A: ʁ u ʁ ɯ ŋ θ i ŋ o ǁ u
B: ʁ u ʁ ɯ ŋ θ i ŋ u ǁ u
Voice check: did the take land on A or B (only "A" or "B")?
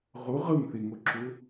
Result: A